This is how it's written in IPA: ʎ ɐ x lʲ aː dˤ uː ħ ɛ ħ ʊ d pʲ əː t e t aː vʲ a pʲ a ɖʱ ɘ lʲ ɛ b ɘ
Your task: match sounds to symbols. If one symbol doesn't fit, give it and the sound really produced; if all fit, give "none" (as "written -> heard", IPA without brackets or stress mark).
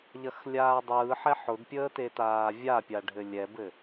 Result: uː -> ɯː